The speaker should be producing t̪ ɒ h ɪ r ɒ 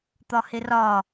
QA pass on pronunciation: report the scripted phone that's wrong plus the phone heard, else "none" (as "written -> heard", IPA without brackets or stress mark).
none